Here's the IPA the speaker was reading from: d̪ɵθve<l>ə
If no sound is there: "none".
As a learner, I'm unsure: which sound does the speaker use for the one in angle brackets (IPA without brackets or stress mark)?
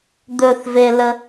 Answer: l